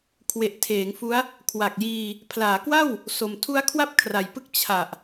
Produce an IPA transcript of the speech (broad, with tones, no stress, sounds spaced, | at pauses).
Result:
kʰ w e˨˩ ʔ tʰ eː˩˦ ŋ f u˦˥ a̯ | kʰ w a˨˩ k̚ j iː˧ | pʰ l aː˩˦ k w a˥˩ w | s o˨˩ m tʰ u˦˥ a̯ kʰ w a˥˩ p̚ kʰ r a˨˩ j p ɯ˥˩ k̚ t͡ɕʰ a˨˩ ʔ